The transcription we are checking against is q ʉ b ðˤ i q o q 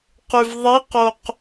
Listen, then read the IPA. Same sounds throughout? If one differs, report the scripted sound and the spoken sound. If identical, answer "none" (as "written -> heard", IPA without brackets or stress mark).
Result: b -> v